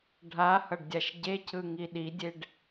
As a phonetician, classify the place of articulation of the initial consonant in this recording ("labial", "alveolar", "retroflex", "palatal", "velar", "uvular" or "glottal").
retroflex